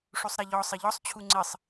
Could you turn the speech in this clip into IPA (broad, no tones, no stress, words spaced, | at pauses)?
ʂusˤɾɛʎɔ sˤɘʎɔsˤ t͡ɕʰuŋ͡ǀɘsˤ